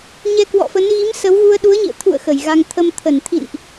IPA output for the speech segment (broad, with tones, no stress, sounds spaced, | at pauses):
ɲ ɛ˧ k w ɔ̰˧˨ f ə˨˦ n ɣ i˨˦ m s ə˨˦ w ɣ u˧ ə̯ ɗ u˨˦ ə̯ ɲ ḭ˧˨ ə̯ t̪ʰ ṵ˧˨ ə̯ x ə˧˩ j ɣ a˧ ŋ t̪ʰ ə˧ m t̪ʰ ə˧˩ n t̪ʰ ḭ˧˨ n ʔ